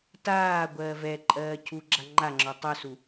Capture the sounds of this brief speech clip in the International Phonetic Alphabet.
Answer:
t aː ɡʷ ɜː v ɛ ǃʼ ɜː cʰ u ɡ͡ǁ a ŋ͡ǃ a ŋ͡ǁ ɔ tˤ œ s u

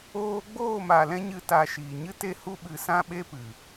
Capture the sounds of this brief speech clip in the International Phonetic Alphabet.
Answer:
oː˧ ɡ͡b oː˦˨ m a˨ l ɛ̃˦ ɲ ɨ˦ t a˧ ʃ iː˨ ɲ ɨ˦ t e˦ h u˦ ɓ ɨ˧ s ã˦ ɓ e˦ p ɨ˨

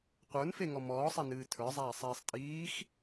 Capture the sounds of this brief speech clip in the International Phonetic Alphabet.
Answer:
qʷ ə˞ n f e ŋ ɔ m ɔː sˤ e n ɨː tʰ ə˞ zˤ æː sˤ iː sˤ tʼ iː x

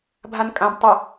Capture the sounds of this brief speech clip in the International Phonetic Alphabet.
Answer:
bʱ a n kʼ ã b tˤ ʌ

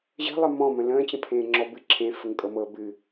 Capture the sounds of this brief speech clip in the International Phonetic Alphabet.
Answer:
ʑ ə̤ lˠ ɘ m ɔ̃ m ə̃ l ə̃ː t͡ɕ ə̃ pʰ ẽː ŋ͡ǁ ɔ b ɨ ǁʰ ẽ f ə ŋ kʼ ɤ m ɤ b ɨ

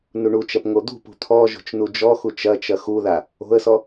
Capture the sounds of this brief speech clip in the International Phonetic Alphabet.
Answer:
n u ɳ u t͡ʃ ɐ p ŋ o d̪ ṳ p ṳ t̪ʰ ɔ ʒ o̤ t͡ʃ n u d͡ʒ ɔ x u t͡ʃ ɐ t͡ʃ ɐ x u ð a | o̤ ə̯ s ɔ

